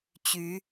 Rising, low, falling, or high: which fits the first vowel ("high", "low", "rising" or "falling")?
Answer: rising